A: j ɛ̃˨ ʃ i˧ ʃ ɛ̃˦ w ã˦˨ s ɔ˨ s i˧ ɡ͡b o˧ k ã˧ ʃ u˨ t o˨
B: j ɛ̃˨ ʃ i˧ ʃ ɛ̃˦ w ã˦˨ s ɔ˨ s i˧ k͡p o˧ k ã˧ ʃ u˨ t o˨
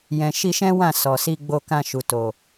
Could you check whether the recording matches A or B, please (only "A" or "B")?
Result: A